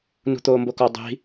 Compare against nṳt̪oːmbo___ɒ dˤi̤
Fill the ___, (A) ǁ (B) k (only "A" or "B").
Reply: B